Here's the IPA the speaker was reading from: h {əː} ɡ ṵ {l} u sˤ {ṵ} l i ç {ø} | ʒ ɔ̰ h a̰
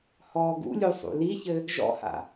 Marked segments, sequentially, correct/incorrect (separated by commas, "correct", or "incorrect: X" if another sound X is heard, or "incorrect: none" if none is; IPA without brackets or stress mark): incorrect: ɔː, incorrect: lʲ, correct, incorrect: ɘ